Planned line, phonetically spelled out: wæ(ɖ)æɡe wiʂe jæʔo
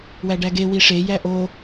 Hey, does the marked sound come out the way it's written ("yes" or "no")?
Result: yes